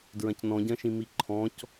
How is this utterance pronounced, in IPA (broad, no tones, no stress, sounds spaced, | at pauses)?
d ɹ ɐ̃ c n ɔ̃ ɟ ɐ̃ ʃ ĩ m i ǃʰ ɔ̃ c